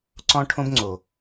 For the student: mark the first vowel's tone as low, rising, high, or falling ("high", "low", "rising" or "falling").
high